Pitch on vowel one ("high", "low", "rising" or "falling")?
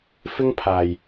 high